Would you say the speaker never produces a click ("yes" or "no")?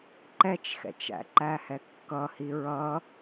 no